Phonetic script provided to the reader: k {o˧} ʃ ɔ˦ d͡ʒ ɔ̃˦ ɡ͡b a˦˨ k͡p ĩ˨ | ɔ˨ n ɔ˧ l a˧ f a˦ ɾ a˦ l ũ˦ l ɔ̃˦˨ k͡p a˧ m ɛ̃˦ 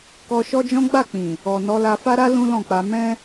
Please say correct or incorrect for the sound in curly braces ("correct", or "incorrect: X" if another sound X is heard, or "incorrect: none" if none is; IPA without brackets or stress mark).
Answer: incorrect: ɔ˧